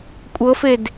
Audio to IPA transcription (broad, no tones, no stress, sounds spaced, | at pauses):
kʷʼ ɤ f e d